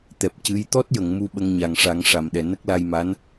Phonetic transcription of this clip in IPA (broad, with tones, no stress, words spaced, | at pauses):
t̪ɛ˨˩p̚ cɨ˧˥j t̪ɔ˦˥t̚jə˨˩˨ŋ mu˧ɓə˧ŋɲa˨˩ŋ ʂa˨˩˦ŋʂa˨˩mɗɛ˨˩ nə˦˥k̚la˧jma˧˥n